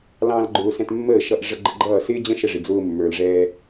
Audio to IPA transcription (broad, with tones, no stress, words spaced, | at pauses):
lɑ̃˧l ɡ͡ǃʊː˧ sɛ̃˧tmːəː˦˨ʃʌ˧ʔ ʐə˧ɡ͡ǃə˧ɡ͡ǃʌː˦˨ sɪː˦d͡ʑə̃˦ ʃə˧ʐɪ˨d͡zʊː˧ mːə˞˨lʐɛː˧